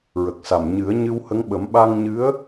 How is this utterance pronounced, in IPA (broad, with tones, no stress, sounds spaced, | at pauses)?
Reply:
ɹ ə˨˩ k̚ s a˨˩ m ɲ ɨ˨˩˦ ə̯ ɲ ɨ˧ w h ə˧˥ ŋ ɓ ə˨˩˦ m ɓ a˧ ŋ ɲ ɨ˧˥ ə̯